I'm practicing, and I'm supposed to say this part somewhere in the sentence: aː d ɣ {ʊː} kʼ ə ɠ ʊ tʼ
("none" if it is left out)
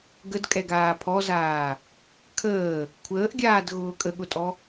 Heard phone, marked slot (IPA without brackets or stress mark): ʊː